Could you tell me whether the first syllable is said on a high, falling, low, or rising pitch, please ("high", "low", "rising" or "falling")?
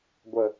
low